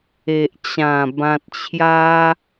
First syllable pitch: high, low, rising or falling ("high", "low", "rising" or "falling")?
low